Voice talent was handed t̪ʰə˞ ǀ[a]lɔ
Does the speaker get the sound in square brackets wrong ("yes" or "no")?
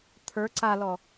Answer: no